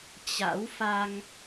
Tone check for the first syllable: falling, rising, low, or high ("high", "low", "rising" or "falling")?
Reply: rising